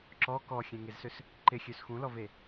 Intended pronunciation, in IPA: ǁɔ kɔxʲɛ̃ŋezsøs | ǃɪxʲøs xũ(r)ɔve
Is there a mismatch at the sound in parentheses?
yes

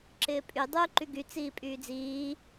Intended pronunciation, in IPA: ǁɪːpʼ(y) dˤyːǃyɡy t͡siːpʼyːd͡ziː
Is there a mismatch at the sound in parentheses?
no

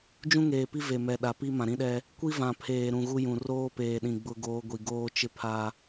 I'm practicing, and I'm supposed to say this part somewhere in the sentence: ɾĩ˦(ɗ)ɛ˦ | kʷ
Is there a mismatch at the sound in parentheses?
no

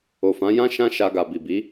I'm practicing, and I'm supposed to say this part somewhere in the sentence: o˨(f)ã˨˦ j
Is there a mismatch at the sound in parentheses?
no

